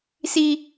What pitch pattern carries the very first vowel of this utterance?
high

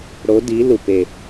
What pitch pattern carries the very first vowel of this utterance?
rising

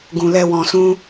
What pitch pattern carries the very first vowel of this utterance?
low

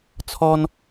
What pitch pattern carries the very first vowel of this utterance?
high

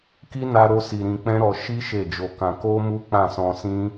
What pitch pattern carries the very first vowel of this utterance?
high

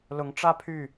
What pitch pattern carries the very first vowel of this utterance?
rising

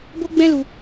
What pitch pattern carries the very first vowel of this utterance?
high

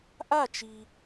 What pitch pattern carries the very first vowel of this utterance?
falling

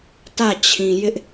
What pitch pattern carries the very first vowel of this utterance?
falling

